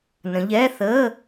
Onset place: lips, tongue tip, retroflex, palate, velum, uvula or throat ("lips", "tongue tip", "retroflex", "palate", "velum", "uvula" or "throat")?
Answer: tongue tip